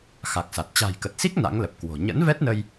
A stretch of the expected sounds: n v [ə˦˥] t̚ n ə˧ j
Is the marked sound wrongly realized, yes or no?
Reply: yes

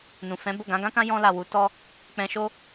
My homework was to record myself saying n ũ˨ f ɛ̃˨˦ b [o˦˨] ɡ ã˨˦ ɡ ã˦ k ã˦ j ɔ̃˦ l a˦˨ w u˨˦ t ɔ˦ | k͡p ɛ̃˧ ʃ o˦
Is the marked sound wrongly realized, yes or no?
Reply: no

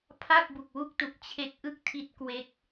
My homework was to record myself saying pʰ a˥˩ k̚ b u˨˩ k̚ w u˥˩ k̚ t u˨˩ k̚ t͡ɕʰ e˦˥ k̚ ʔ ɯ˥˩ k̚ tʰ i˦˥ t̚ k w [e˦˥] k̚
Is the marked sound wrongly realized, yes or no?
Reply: no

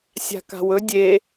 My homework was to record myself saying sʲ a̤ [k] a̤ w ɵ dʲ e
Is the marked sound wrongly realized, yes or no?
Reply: no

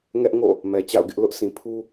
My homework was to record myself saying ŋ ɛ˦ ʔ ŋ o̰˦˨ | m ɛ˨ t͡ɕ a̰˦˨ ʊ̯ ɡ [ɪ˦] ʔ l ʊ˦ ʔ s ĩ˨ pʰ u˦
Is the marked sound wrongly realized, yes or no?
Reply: no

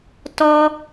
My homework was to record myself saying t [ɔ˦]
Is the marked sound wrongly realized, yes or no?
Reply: no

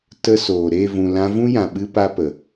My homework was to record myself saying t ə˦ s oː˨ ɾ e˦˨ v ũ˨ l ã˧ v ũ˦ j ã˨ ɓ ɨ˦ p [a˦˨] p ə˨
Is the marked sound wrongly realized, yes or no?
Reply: yes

